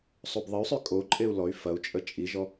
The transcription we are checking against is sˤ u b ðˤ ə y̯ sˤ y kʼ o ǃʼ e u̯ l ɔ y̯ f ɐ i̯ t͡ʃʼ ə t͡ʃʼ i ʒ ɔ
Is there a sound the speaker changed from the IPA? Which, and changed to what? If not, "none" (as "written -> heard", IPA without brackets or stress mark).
i̯ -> u̯